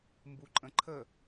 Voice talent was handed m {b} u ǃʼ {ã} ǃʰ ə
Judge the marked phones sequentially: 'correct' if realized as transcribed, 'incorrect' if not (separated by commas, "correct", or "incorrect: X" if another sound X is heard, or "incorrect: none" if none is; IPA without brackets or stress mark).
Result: correct, incorrect: ə̃